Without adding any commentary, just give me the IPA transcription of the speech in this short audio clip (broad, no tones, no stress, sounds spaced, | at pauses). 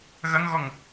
ɣ ɐ ŋ ɣ ɔ ŋ